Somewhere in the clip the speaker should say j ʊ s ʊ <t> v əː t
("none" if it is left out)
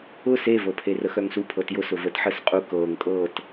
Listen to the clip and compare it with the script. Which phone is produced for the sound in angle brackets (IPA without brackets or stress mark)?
none